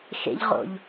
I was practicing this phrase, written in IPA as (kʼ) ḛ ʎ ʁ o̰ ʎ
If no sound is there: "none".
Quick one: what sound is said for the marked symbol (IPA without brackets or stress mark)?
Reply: x